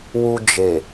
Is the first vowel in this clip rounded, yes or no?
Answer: yes